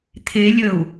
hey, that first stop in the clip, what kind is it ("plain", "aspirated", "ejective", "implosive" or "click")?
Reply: aspirated